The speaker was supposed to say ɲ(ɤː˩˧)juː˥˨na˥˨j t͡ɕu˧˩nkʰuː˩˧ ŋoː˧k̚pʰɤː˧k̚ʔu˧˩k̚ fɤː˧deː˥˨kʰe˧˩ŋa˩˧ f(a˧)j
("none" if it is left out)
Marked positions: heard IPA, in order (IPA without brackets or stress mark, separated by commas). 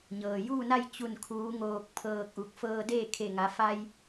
ɤː˩, a˧